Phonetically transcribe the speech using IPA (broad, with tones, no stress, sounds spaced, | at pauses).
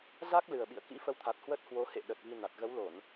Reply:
z a˦˥ k̚ l ɨ˨˩ ə̯ ɓ ḭ˧˨ ə̯ k ḭ˧˥ f ə˧ w t̪ʰ a˨˩ t̚ h w ə˦˥ t̚ h w o˨˦ h ḛ˧˨ ɗ ə˨˩ t̚ v i˧ n a˨˩ t̚ ɣ ə˨˦ w l o˧˩˨ n